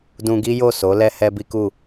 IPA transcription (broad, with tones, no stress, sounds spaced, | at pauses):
d ũ˧ ɡ i˦ j o˦˨ s o˨˦ l ɛ˧ h ɛ˧ b i˦ k u˦˨